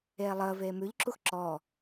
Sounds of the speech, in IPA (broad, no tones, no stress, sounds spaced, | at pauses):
eː lˠ əː v eː m ʉ ʎ ǁ u x ǁ ɔː